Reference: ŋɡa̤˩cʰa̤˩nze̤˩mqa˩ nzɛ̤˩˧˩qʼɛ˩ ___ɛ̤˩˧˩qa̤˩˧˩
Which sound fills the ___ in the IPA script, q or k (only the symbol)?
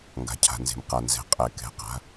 k